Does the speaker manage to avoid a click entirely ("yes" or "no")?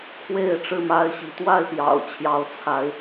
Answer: yes